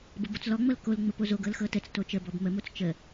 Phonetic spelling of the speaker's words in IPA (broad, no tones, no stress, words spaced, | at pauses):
bəbot͡slɔŋ͡mɤl kolŋ͡mə pozoɡɤl xɤtət͡s tot͡ʃəbɔb məmot͡s t͡ʃə